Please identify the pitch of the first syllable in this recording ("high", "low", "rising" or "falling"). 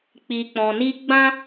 low